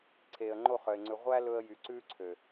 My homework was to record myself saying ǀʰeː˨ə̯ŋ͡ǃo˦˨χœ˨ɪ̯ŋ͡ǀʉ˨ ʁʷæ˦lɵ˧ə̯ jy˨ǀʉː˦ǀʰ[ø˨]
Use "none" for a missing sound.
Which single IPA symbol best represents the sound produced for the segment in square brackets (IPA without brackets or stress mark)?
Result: ø˨